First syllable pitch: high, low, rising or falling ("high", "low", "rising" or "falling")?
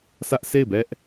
high